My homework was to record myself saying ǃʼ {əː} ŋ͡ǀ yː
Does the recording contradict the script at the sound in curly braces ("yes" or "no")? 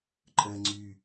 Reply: no